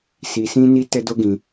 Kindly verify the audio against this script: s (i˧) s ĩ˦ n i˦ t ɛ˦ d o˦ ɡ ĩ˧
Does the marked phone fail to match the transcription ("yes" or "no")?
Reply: no